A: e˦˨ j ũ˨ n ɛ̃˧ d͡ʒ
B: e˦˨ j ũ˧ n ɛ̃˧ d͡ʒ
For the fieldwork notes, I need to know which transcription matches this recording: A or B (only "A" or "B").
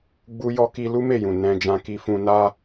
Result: A